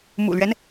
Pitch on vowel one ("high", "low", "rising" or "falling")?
low